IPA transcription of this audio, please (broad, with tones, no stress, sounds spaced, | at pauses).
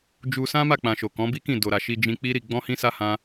d͡ʒ u˧ s ã˦ m a˦˨ k͡p ã˨ ʃ o˨ k ɔ̃˨˦ b i˦ k ĩ˦˨ d o˨ ɾ a˨ ʃ i˧ d͡ʒ ĩ˧ k͡p i˦ ɾ i˧ ɡ͡b ɔ̃˦ h ĩ˦ s a˦ h ã˦